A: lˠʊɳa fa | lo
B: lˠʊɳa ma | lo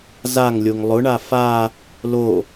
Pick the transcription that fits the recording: A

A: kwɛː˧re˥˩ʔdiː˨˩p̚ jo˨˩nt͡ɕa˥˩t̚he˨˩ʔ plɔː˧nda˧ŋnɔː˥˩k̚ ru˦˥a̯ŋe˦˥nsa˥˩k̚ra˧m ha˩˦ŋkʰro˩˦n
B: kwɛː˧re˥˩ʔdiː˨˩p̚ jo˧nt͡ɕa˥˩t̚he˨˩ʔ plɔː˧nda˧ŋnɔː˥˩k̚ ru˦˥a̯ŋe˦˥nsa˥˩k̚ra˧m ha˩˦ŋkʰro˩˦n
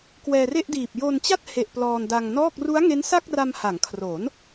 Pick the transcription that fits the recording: B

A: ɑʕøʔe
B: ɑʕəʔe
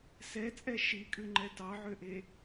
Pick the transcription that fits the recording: A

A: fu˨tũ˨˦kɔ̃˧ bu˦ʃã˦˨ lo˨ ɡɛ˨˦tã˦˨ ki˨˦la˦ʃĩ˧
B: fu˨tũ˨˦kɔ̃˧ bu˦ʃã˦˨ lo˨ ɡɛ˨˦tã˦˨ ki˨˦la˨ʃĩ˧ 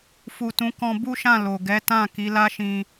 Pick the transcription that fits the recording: A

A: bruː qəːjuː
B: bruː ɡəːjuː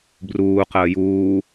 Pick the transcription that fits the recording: A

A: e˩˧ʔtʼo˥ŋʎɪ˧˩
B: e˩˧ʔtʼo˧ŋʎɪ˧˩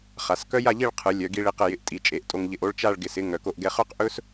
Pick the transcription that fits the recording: B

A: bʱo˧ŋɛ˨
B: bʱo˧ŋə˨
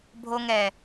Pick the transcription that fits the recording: A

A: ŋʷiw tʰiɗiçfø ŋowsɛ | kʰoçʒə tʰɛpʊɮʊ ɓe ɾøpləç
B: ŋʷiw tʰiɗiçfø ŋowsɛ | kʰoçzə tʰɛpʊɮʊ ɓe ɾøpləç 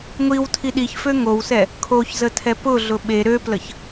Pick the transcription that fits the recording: B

